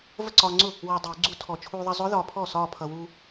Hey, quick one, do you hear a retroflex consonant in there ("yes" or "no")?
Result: no